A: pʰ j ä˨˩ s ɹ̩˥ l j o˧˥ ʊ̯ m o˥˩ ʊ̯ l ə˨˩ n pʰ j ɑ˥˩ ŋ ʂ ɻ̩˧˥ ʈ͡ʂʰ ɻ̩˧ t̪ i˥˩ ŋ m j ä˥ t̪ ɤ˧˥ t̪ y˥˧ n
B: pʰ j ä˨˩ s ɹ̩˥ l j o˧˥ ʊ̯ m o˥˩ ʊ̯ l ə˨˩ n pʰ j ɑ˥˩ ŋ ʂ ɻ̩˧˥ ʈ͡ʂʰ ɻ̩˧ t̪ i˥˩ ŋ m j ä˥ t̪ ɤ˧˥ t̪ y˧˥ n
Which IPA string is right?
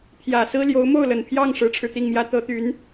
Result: B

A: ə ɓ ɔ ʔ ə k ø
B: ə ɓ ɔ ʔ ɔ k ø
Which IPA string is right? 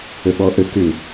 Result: A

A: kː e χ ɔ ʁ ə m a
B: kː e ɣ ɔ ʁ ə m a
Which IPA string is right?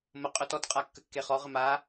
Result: A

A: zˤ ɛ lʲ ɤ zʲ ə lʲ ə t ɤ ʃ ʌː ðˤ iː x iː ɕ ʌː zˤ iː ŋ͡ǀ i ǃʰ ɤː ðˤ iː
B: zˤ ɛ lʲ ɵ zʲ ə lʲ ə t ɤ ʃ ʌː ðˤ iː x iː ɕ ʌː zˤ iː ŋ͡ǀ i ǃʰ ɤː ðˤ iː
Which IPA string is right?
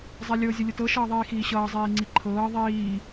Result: A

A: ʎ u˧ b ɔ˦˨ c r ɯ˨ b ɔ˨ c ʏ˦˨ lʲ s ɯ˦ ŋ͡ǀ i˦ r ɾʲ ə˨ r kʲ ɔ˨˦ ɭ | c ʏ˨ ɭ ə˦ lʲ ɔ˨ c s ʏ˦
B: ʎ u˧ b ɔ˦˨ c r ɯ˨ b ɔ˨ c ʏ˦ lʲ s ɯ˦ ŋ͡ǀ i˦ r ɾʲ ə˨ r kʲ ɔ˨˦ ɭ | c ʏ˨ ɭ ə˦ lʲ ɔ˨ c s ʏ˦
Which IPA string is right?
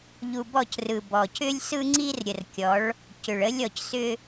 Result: B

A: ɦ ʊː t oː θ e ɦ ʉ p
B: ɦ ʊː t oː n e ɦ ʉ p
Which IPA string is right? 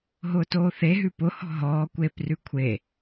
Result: A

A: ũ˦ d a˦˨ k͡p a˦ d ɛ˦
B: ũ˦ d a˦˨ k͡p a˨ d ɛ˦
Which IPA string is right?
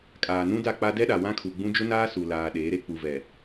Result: A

